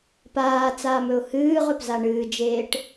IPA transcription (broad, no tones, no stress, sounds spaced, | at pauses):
p aː t͡s aː m ɵ ʊ̯ h ɨː ʁ ɵ p z a ɳ ɨː d͡ʒ eː ʈ